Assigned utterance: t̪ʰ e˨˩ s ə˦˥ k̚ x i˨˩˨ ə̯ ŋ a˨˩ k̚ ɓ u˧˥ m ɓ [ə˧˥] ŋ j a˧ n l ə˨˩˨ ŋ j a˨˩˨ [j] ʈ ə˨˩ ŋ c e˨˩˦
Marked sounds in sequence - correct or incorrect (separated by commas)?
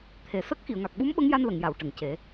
correct, incorrect